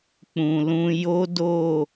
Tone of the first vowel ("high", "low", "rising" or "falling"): low